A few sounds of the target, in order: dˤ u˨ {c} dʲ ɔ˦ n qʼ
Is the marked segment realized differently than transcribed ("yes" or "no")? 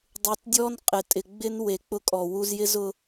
yes